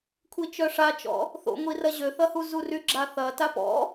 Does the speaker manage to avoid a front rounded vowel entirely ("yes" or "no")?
no